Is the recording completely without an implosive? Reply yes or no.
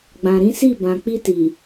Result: yes